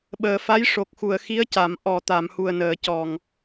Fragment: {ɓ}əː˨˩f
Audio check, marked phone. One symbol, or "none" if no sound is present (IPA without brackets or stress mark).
ɓ